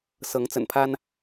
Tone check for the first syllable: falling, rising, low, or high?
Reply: rising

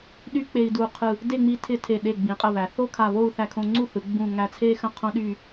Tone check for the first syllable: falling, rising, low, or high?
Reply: high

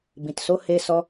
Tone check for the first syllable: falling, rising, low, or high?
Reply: low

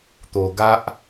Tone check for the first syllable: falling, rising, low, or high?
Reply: low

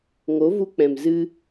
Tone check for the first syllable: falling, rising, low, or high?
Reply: rising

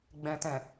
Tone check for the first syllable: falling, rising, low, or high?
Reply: low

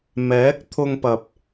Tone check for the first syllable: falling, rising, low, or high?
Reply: rising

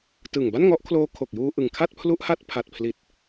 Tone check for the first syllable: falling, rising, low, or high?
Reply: low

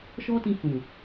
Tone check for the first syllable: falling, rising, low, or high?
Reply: high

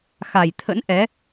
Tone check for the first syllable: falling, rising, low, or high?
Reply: low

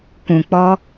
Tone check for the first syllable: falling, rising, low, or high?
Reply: low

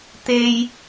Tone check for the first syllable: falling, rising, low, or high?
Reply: high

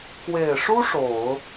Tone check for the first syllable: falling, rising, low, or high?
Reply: low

